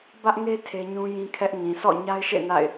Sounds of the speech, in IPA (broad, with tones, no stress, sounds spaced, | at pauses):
b ä˦ ʔ ŋ e˦ tʰ e˦ ɲ ũ˦ j ĩ˦ kʰ ɛ˦ ʔ ŋ ĩ˨ sʰ ɔ̰˦˨ ɲ a˦ ɪ̯ ʃ ḛ˦˨ n a̰˦˨ ɪ̯